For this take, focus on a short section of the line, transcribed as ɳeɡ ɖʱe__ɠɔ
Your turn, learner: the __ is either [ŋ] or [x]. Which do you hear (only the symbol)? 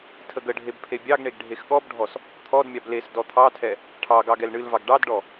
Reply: x